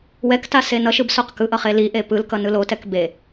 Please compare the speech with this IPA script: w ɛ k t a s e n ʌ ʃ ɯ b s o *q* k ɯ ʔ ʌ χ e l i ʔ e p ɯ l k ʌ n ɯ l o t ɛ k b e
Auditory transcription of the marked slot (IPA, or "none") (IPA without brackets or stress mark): q